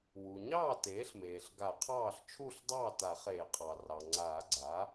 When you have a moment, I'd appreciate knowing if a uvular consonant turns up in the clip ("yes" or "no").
yes